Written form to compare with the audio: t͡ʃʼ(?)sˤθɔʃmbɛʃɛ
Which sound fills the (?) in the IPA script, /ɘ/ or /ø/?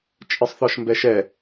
ɘ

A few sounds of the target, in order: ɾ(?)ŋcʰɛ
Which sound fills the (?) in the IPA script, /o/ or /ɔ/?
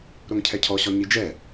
o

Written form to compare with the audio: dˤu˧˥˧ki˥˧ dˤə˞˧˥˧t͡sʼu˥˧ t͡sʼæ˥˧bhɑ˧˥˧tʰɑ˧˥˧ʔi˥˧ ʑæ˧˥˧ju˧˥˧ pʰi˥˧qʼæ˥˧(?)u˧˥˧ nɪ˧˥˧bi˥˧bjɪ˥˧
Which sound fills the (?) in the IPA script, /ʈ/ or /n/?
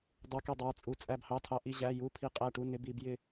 ʈ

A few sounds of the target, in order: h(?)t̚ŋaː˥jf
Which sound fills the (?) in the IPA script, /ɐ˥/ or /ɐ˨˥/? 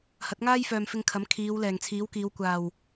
ɐ˨˥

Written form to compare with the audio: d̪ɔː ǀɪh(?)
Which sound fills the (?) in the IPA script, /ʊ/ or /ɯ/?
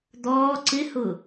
ʊ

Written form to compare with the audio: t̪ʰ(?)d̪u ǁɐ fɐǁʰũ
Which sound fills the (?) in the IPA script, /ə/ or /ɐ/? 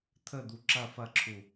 ə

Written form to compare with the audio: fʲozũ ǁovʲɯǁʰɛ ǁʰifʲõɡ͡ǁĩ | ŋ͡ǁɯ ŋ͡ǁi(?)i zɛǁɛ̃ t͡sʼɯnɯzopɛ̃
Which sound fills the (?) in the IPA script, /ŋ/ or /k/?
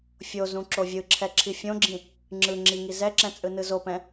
ŋ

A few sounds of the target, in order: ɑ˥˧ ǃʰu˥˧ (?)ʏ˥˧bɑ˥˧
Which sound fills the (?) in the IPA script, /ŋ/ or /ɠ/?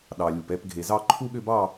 ɠ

